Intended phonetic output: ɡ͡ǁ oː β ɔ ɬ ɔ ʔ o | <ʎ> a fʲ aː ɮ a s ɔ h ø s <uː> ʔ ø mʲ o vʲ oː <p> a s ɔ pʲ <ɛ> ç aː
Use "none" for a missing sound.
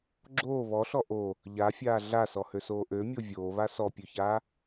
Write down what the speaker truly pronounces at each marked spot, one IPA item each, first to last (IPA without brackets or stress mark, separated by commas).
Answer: ʎ, oː, β, ø